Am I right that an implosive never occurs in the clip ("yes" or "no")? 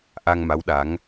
no